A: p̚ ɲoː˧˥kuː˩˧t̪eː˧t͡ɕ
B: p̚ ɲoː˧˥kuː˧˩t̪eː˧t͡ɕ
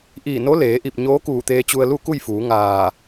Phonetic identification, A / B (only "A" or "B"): B